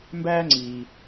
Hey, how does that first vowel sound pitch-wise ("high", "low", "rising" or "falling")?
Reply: high